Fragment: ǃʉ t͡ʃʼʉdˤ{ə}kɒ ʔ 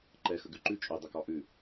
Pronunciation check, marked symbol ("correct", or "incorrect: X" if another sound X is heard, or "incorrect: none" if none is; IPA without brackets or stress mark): correct